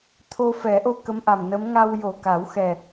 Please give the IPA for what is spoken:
t̪ʰ o˧ f ɛ˨˩˦ ʔ o˧ k ə˧˥ m ʔ a˨˩ m n ə˧˥ m ŋ a˧ w j o˨˩ k a˨˩˦ w x ɛ˨˩

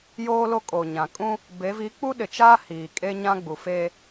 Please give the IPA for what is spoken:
j oː˦ l o˦ kʼ o˨ ɲ ã˨ kʼ ũ˦ | b e˨˦ v i˨˦ k͡p u˦ ɗ ɪ˨ t͡ʃ aː˦ h iː˨ kʼ e˦ ɲ ã˦ ɡ͡b u˨ f e˦

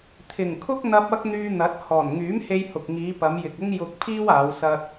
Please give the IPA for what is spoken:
t̪ʰ ɪ˨˩ ŋ kʰ ʊ˥ k̚ n̪ ɐ˧ p̚ ɐ˥ k̚ n̪ yː˧ n̪ ɐ˨˥ t̚ h ɔː˨˩ n ŋ yː˨˥ m h e˧ j h ʊ˨ k̚ ŋ iː˨˧ p ɐ˨˧ m j ɪ˨ k̚ ʊ˥ ŋ j ʊ˧ k̚ pʰ iː˥ w aː˨˧ w s ɐ˧ t̚

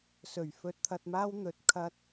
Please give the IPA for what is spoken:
s ɵ˨˩ ɥ f ɵ˧ t̚ t̪ʰ ɐ˧ t̚ m aː˥ w n̪ ɵ˧ t̚ kʰ ɐ˥ t̚

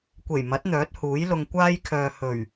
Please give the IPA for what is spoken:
kʷ e˨˩ j m ɐ˨˥ t̚ n̪ œː˨˥ t̚ h uː˨˥ j l ʊ˧ ŋ kʷ aː˥ j kʰ œː˨ h ɵ˨˩ ɥ

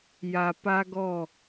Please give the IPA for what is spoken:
j a˨ p a˦ ɡ ɔ˦˨

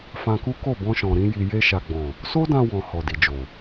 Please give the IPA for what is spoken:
f ã˧ k u˦ k o˦˨ b ɔ̃˧ ʃ ɔ̃˨ ɾ ĩ˧ j i˨ j e˧ ʃ a˨ ɡ͡b ɔ̃˨ | s o˦ d ã˧ w ɔ̃˨ h ɔ˨ d i˨ d͡ʒ o˨

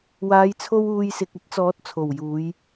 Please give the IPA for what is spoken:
w aː˨˧ j t͡sʰ o˧ w uː˨ j s ɪ˨ k̚ ɐ˥ t̚ t͡s ɔː˨˥ t̚ t͡sʰ o˨˩ w j uː˨˧ j

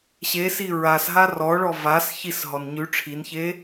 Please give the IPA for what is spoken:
ɕ e s i ɹ a s ɦ a r ɔ ɭ ɔ v a s ç i s ɦ ɔ n ɲ ʉ ʈ͡ʂʰ i n ç e

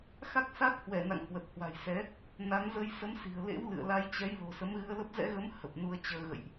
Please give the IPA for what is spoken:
x a˦˥ k̚ s a˦˥ k̚ h w ɛ˧˩ n a̰˧˨ ŋ h w ə˨˩ t̚ h w a̤˨˩ j s ɛ˨˦ | n a˨˦ n z ə˧ j s ə˨˦ m s i̤˨˩ ə̯ l ḛ˧˥ w l ɨ̰˧˨ ə̯ l a˧ j t͡ɕ ɛ˨˦ j l o̤˨˩ s ə˨˦ m ɣ ɨ˧ ə̯ l ə˦˥ p̚ z ɛ̰˧˥ ɣ ə˨˦ m h ə˨˩ p̚ n u˧ ə̯ t͡ɕ əː˧ ɣ ə̰˧˨ j ʔ

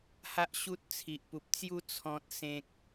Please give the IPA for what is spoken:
h a˦ ʔ ɕ u˦ t̚ t͡sʰ i˨ ʔ p u˨ p̚ t͡s j u˦ t͡sʰ ɔ̃˨ t̚ s ẽ˨ k̚

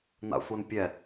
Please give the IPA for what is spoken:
n a̰ sʷ e n pʲ ɛ

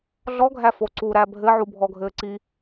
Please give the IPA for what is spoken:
ɮ ɔ ɡʱ æ f o ǀ u ɾ æ bʱ ɘ ʕ u bʱ ɔ ɡʱ ɘː ǀ i

